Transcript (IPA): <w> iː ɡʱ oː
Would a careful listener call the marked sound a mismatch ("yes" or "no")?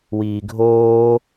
no